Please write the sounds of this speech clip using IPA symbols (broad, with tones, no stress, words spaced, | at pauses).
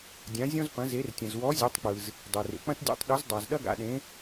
dʲã˨˥zʲɔ̃˥z pɐ̃˨˥ze˨˥r tʲɐ̃˩zwɔ˨˥ zʲɐ˨˥tˤk͡pɯ˩z | dˤe˩rḛ˩k͡pɐ̃˥t dʲḛ˨˥tˤɗɵ˨˥z dˤa˩z ɗɐ˥ɡa̰˩ɗẽ˨˥